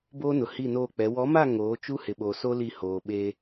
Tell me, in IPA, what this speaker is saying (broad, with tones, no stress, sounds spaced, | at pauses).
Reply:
b oː˦ n ʊ˨ h i˦˨ n oː˦˨ k͡p ɛ˨˦ w ɔ˨˦ m a˦˨ ŋ oː˨˦ t͡ʃ u˦ h ɪ˨ ɓ o˨ s o˦ l i˦˨ h oː˨ ɓ e˦